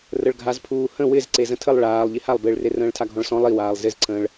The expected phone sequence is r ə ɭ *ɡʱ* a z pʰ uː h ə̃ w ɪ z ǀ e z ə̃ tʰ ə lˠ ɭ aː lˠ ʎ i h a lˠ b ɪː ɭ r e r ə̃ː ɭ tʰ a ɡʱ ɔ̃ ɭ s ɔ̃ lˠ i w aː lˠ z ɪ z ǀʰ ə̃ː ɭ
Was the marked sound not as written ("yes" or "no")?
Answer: no